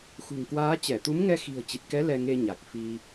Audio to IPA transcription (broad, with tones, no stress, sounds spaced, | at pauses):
x ṳ˨˩ ŋ k w aː˨˦ t͡ɕ ɛ˧˩ t̪ u˨˦ m ŋ ɛ˧ x i̤˨˩ ə̯ t͡ɕ i˨˩ t̚ k ɛ˨˦ l ɛ˧ ŋ e˧ ɲ a˨˩ k̚ f i˧